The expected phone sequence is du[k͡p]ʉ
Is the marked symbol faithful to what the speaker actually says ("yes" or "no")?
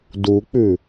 yes